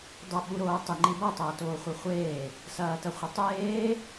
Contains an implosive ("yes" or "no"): yes